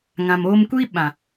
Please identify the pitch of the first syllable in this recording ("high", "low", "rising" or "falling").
low